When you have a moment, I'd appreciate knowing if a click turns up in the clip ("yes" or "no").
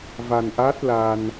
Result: no